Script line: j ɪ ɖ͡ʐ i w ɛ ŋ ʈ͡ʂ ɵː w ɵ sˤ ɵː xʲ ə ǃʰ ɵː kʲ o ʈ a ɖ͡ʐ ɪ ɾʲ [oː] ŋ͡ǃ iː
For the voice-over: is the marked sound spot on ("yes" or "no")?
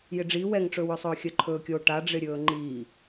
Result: no